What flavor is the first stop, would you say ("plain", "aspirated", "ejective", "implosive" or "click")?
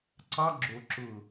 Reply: click